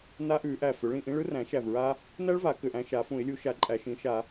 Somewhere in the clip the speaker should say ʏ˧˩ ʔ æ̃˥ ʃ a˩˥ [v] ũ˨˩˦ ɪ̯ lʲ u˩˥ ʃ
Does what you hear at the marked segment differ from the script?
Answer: yes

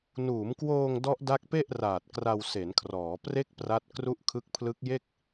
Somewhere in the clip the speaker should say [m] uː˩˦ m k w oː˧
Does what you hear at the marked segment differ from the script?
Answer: yes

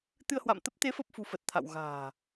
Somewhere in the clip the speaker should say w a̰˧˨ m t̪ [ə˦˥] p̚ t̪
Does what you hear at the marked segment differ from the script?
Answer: no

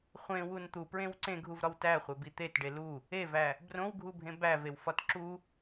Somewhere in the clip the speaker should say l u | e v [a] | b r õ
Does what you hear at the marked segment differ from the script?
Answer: yes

